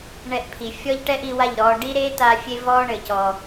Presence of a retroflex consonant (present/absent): present